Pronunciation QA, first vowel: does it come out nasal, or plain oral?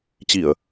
oral